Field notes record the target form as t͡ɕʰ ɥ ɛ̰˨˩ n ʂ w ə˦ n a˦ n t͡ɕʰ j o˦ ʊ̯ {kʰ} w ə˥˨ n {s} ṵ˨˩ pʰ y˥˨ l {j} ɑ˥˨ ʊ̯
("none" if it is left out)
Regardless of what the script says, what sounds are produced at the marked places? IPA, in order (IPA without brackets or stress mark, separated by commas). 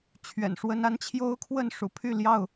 kʰ, ʂ, j